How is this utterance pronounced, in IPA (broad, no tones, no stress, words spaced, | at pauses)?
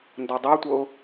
ndɒdˤætʷɤʊ̯